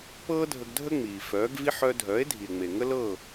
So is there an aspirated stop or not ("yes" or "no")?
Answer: no